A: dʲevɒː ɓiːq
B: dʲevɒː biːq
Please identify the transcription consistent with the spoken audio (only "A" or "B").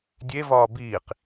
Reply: B